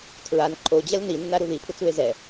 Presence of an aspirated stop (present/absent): present